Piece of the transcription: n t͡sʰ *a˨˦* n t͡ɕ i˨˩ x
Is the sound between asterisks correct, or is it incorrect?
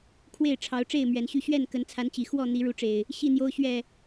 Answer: correct